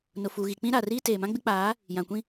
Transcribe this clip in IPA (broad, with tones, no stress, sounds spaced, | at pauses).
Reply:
n ʊ˨ f uː˨ ɣ i˨ k͡p ĩ˦ ɾ a˨ r iː˦ t eː˨ m ã˦ ɡ͡b ɪ˦ k͡p aː˨˦ | j ã˨ kʷ ĩ˦